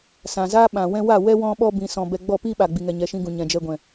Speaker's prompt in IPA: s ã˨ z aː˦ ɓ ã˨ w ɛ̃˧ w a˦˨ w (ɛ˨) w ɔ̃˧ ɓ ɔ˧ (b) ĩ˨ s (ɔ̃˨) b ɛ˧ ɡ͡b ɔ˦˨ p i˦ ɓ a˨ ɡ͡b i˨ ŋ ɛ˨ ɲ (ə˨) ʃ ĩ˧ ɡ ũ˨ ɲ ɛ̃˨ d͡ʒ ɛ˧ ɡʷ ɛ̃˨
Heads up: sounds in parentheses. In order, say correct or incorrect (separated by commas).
incorrect, correct, correct, incorrect